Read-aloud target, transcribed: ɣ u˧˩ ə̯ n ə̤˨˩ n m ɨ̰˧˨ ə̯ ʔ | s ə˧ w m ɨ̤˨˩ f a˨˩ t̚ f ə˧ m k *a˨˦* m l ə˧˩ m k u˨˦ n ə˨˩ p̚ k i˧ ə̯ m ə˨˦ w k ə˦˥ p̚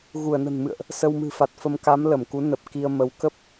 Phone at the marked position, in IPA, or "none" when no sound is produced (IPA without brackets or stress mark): a˨˦